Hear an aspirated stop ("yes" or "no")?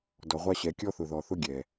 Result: no